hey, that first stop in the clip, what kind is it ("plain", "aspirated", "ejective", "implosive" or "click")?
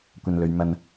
plain